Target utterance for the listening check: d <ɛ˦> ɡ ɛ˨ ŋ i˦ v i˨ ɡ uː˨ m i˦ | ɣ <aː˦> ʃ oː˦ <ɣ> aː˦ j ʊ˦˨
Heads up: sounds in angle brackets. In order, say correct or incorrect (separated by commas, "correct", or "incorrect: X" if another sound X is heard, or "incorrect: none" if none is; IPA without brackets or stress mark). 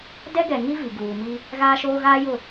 correct, correct, correct